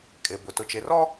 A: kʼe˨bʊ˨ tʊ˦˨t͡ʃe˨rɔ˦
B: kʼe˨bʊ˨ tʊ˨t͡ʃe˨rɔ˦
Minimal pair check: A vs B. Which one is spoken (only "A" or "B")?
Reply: B